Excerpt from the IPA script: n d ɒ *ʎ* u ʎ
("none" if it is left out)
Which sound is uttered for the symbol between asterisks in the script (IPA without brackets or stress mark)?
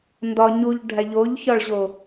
ɲ